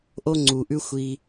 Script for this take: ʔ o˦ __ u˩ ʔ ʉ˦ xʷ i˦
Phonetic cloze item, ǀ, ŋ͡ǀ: ŋ͡ǀ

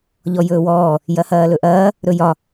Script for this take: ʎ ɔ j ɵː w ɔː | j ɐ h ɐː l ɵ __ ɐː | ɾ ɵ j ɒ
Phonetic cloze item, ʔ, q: ʔ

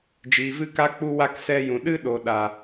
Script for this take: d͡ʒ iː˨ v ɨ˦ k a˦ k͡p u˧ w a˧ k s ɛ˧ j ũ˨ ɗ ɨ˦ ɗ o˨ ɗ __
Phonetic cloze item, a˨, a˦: a˨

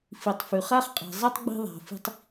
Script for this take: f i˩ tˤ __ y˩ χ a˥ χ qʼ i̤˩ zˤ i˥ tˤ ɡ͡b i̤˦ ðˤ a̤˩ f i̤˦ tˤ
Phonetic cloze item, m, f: f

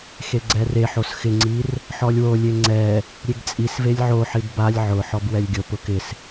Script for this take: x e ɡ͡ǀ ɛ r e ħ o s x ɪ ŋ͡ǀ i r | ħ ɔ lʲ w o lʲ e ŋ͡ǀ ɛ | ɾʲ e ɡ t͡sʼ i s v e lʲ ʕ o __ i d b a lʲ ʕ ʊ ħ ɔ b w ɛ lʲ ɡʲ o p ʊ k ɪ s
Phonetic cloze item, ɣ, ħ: ħ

